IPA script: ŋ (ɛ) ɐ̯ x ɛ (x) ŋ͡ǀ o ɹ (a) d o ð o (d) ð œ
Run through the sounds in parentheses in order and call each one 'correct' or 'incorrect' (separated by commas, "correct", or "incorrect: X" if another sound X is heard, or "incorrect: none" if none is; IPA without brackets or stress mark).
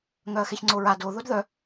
incorrect: œ, incorrect: ç, correct, correct